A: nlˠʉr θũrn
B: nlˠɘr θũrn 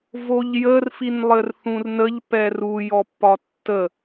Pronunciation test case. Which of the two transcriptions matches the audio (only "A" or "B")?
B